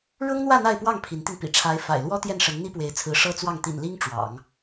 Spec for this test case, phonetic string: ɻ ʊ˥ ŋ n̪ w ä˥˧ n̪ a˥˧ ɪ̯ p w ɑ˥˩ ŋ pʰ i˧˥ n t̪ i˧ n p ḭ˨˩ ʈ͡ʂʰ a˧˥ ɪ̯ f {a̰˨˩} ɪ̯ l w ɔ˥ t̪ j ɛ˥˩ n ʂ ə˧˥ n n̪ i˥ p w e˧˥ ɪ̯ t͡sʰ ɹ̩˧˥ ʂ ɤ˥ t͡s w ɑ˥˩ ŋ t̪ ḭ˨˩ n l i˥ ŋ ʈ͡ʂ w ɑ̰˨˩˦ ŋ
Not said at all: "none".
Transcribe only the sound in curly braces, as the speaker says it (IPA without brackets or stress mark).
a̰˨˩